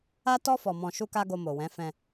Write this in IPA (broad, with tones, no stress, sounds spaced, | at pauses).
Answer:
a˦ t ɔ˦ f ɔ˧ m ɔ̃˧ ʃ u˦ k a˦ ɡ o˧ m o˨ w ɛ̃˨˦ f ɛ̃˧